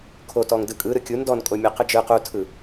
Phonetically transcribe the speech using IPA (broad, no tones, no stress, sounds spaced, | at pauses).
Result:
kʰ o t ɔ ŋ d ɯ kʼ ɯ ɾ ɯ kʲ u n d ɔ n kʼ o mʲ o q ɯ d͡ʒ ɯ q u tʰ ɯ